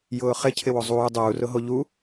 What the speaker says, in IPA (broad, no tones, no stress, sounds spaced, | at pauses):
j ʊː χ ɪ cʰ ɪ w o zˤ uː dˤ uː r ʊ ɦ o ʎ u